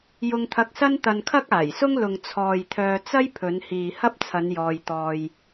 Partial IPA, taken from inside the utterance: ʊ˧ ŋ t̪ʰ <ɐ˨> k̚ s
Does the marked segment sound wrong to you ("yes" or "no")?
yes